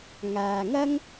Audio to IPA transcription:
ŋ aː˨ ŋ ɐ˥ ŋ

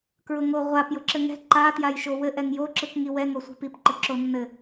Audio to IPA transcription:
k ɹ ʊ ŋ o ʁʷ a p j ʊ ǁ ɘ ŋ ɛ̤ ǃ a t j a j ʃ o w ɘ ʔ ɛ ŋ j o ǁ ɯ k ŋ i w ɛ ŋ o sʷ i̤ p i p ǃ ɘ ǁ o nː ɘ

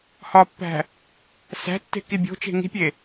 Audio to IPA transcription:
h ɒ pː æ̤ | s æ̤ tː e̤ k i bʲ o̤ t͡ʃ e̤ ŋ i̤ pʲ e

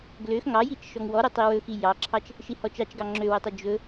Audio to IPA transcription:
ɡ l ø x ŋ ɑ j i t͡ʃ ʃ ɔ ŋ w ɔ ɾ ɵ tˤ i w ɵ x i j ɑ ǁʰ ɑ t͡ʃ | ʃ i h ɔ t͡ʃ ɑ t͡ʃ ɡ ɑ ŋ͡ǁ ø w ø tˤ ɵ d͡ʒ ɵ

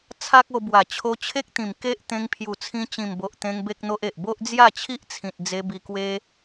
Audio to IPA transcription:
t͡sʰ a˦ k̚ o˧ b w a˨˩ t͡ɕʰ o˧ t͡ɕʰ e˦ k̚ t̪ ĩ˨˩ m k e˦ ʔ t̪ ẽ˧ ŋ pʰ j u˨˩ t͡sʰ ĩ˧ t͡ɕ ĩ˨˩ m b o˨ ʔ t̪ ẽ˧ ŋ b e˦ k̚ n̪ o˦ ʔ e˨ ʔ b o˦ ʔ d͡z j a˥˧ t͡ɕʰ i˦ ʔ t͡sʰ ĩ˨ t̚ d͡z e˧ b i˧ k w e˦

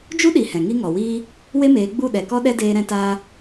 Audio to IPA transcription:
d͡ʒ u˦ ɗ i˨ h ɛ̃˨ ŋ i˦ ŋ ɔ˨ w iː˦ | w e˦ m eː˨˦ ɡ͡b u˦˨ ɗ ɛ˨ k ɔ˦ ɗ ɛ˦ d eː˦ ɾ ɛ̃˦ t aː˦

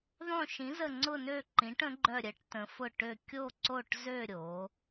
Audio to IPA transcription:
ðˤ õ˦˨ ʃ ĩ˨˥ z ə˦˨ ŋ͡ǀ ʊ˦˨ n ø˦˨ ǃ ĩ˨˥ ʈ ə̃˨˥ ɡ͡ǃ œ˦˨ ɾʲ ə˨˥ ʈ t ə̃˨˥ f ʊ˦˨ ʈ ø˦˨ kʲ o˦˨ ǀ o˦˨ ʈ z ø˦˨ ɾʲ o˨˥

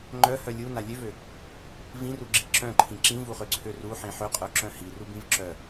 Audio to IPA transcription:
ŋ͡ǃ œ h œ lʲ u n a lʲ ø v ø | v ĩ r u ɡ͡ǁ i ǁ œ̃ ǃʰ ĩ ǁ ĩ v u χ ø ǀʰ ø r u ħ ĩ ħ ø qʼ œ ǁ œ̃ h i r u b ĩ v ǁ œ

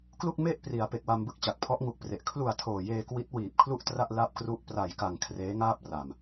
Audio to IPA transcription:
k l u˥˩ k̚ m e˥˩ ʔ p r i˩˦ a̯ p e˨˩ k̚ w a˧ m b ɯ˥˩ k̚ t͡ɕ a˨˩ k̚ pʰ ɔ˦˥ ʔ ŋ u˨˩ k̚ p r e˨˩ ʔ kʰ l u˨˩ a̯ tʰ oː˨˩ j eː˧ k w i˦˥ t̚ w iː˨˩ p̚ kʰ l u˥˩ ʔ t r a˥˩ ʔ l a˥˩ p̚ k r u˥˩ ʔ p r a˨˩ j k a˨˩ ŋ kʰ r eː˦˥ ŋ aː˥˩ p̚ r a˨˩ m

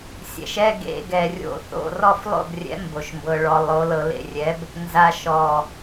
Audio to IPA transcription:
sʲ ɛ̰˨˩ ʃ ɛ˧˥˧ ɡ ḛ˧ ɡ ɛ˨˩ rʲ o̰˥˨ θ o̰˥˨ r ɔ˥˨ f lˠ o̰˥˨ b rʲ ɛ̰˨˥ m b o˨˩ ʃ m b ɤ˧ ɭ ɔ˧ lˠ o˨˥ l ɤ˧ l ḛ˥˨ rʲ ɛ˨˥ b | n z a˧ ʃ ɔ˨˩

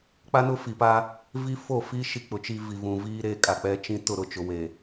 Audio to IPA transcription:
k͡p a˦ n ʊ˦ f i˨ p a˦ | v i˦ f o˦˨ f i˦ ʃ i˦ k͡p ʊ˨ t͡ʃ i˦ v i˨ v ũ˨ v iː˦ ɾ eː˦ kʼ a˨ k͡p ɛ˦ t͡ʃ ĩ˦ t ʊ˦˨ ɾ ʊ˨ t͡ʃ ʊ˨ w e˨

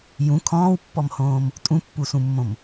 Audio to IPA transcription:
j ũ kʰ ɔ̃ː w pː ɔ m h õː m | tʼ ũ pː u s ũ mː õ m

